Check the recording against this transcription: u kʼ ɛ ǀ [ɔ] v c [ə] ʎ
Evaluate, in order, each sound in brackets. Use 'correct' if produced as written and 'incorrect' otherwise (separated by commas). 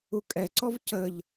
correct, correct